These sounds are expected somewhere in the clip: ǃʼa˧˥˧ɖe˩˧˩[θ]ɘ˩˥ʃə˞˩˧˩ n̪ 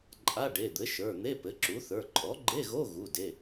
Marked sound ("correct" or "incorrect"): incorrect